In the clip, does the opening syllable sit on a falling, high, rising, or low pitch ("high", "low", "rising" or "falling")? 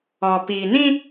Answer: low